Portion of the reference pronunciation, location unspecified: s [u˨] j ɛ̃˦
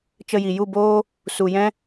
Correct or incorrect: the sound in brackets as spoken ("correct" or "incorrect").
correct